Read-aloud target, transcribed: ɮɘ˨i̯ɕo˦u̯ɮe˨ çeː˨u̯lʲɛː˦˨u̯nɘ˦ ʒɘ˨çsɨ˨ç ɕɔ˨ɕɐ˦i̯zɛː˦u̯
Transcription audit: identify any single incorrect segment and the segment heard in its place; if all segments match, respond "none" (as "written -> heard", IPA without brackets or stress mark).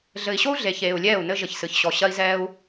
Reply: none